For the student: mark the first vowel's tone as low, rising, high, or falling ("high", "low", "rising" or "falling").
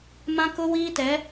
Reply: high